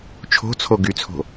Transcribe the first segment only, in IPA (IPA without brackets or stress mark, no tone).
t͡ʃʰ